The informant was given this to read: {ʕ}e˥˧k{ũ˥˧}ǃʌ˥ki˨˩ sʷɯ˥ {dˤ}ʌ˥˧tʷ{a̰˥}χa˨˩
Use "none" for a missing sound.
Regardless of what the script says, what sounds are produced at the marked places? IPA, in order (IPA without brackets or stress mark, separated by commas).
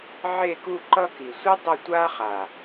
ʕ, u˥˧, dˤ, a˥